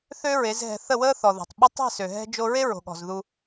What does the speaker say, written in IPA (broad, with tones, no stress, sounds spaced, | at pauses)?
θ ø˦ ɹ e˨˦ z ɦ ɛ̤˧ θ ə˦˨ w əː˦ θ ɔ˨ ð o̤˨ tˤ ɓ ɐ˦ tˤ ɛ̤˦˨ s ø˨ ɦ ɛ̤˧ d͡ʒ o˧ ɹ e˦ ɹ o̤˨ ɠ ɔ̤˨ z ð u˧